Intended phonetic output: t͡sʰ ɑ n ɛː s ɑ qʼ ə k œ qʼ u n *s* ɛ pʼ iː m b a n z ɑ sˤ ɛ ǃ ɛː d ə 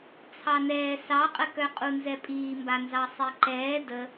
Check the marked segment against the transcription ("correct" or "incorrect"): incorrect